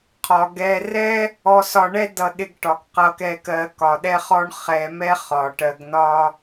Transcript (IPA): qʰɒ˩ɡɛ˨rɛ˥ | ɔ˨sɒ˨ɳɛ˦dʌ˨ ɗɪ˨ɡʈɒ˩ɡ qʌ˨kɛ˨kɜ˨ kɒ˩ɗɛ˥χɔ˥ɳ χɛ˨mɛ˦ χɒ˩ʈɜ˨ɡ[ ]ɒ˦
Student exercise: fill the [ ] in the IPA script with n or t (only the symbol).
n